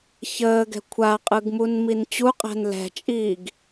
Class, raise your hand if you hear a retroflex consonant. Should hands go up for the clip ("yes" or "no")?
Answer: no